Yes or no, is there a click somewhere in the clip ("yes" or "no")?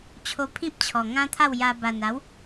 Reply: no